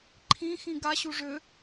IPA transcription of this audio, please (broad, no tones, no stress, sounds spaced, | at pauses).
ǃʰ ĩ x ĩ ɡ a ɕ u ʐ ø